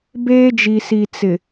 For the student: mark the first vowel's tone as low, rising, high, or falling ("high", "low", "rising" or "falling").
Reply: high